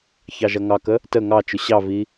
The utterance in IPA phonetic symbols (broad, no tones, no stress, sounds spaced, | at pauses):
ç ɑ ʒ ʌ ŋ ɑ k ə | t ə ŋ ɑ t͡ʃ ʊ ɕ ɑ v i